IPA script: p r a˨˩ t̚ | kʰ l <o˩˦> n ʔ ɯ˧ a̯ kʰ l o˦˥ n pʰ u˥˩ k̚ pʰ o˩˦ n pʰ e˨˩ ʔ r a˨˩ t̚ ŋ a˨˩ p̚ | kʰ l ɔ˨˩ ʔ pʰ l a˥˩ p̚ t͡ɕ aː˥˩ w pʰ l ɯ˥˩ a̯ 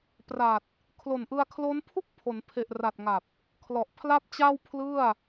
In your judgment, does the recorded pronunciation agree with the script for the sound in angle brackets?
no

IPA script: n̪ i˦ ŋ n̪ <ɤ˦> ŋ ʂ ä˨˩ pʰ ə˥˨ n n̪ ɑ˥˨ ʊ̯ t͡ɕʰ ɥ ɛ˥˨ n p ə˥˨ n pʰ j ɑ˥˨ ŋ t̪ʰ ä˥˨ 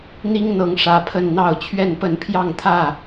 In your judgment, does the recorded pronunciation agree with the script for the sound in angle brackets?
no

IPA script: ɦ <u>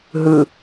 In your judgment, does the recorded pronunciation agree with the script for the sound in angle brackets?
no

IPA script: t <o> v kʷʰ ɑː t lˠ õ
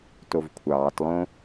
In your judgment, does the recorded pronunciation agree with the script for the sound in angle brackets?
yes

